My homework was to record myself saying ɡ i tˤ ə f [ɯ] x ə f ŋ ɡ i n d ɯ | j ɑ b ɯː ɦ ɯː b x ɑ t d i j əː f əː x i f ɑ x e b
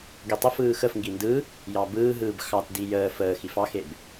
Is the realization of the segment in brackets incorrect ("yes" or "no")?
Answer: yes